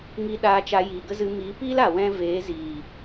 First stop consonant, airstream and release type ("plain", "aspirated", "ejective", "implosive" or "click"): implosive